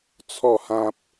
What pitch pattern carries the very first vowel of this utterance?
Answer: falling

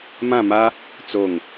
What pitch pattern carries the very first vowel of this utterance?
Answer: falling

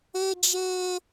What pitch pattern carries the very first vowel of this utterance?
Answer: high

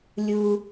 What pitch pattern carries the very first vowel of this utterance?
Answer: low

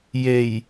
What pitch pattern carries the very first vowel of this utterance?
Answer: low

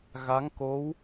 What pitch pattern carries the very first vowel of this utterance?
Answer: rising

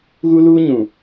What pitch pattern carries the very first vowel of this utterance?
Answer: high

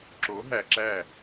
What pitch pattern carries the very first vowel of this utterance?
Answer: rising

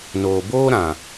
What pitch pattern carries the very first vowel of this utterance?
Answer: low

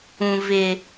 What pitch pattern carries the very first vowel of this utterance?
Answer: low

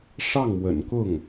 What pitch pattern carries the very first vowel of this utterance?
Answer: falling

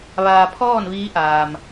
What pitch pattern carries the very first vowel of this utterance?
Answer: low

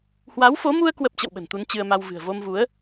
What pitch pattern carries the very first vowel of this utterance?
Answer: rising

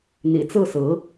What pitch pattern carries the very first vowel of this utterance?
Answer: low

